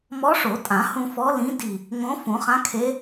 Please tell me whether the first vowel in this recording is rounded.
yes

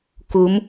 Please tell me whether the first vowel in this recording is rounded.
yes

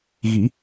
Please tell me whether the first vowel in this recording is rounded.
no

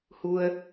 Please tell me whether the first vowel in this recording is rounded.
yes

